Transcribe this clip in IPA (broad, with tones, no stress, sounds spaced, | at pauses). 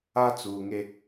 a˦ t͡s uː˨ ŋ e˦